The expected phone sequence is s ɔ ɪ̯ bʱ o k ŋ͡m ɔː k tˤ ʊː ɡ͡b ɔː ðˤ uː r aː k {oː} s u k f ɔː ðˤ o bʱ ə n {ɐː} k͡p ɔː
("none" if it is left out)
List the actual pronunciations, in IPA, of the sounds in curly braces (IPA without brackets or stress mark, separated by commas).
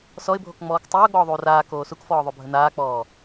oː, aː